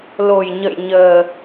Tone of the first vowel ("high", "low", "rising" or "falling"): low